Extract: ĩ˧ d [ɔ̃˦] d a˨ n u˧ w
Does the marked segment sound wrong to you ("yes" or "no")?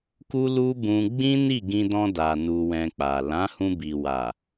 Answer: yes